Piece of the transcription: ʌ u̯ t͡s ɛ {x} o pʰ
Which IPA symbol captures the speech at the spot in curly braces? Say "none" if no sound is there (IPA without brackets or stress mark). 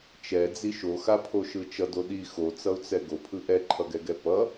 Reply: ɡ